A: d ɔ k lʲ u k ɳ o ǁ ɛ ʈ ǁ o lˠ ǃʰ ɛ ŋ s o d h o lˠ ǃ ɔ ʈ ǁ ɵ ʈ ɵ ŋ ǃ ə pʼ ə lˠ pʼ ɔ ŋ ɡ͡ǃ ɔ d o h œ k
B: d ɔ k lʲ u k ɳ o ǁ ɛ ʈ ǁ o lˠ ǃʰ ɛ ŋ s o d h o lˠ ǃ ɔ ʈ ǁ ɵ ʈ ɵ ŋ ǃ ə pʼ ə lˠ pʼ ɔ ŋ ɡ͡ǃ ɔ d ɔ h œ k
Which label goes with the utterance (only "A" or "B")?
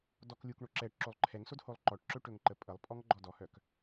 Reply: B